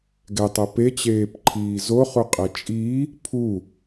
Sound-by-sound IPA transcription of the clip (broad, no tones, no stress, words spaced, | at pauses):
ɡɛtˤɤ pet͡ɕeːpǃʰiː zoχuqʼe t͡ʃʼi | pʰu